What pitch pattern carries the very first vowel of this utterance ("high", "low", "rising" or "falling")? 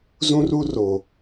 high